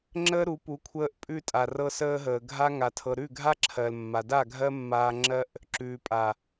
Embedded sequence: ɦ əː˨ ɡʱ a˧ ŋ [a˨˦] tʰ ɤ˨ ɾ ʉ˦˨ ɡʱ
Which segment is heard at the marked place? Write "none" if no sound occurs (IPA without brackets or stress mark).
a˨